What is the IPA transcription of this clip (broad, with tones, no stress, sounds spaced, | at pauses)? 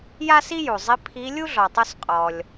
j a˥ s i˥ j u˩ zˤ i˧˥ pʰ i˧˥ lʲ u˥ ɮ ɔ˩ tˤ u˧ s qʼ ɔ˩ lʲ